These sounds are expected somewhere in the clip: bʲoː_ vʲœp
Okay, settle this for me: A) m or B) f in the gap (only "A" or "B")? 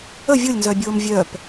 A